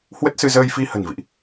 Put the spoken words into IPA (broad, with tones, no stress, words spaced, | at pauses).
hwə˦˥t̚sɨ˧ zəː˧jfi˧ hə̤˨˩nvḭ˧˨ʔ